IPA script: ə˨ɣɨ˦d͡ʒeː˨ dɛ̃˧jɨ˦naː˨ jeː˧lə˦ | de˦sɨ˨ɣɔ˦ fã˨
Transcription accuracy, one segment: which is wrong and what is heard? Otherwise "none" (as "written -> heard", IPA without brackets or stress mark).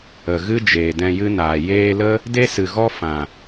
none